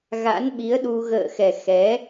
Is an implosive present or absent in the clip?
present